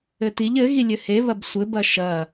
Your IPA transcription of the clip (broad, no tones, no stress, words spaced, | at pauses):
ɘtiʎ ɘ ɣilʲɘhe βɐbsʷɘ bɐʃɐ